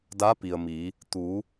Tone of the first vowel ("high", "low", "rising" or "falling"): rising